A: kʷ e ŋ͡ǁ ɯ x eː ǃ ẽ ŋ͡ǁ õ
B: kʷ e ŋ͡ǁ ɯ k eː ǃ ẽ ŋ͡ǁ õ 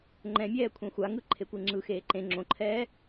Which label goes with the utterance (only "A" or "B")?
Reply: A